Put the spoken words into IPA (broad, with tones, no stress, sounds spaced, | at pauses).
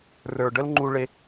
r ə˞˨ ɖ ə˦ l ŋ͡ǃ u˦ ɭ e˦